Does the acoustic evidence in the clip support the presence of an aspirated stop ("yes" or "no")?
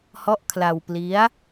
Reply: yes